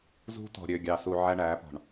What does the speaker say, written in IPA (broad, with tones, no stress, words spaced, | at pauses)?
zṳ˦ tɔ̤˨ɾʲø˨ ɡʲɑ˨su˨ ʕæ˦ɳæː˨˦pɔ̤˨ɳ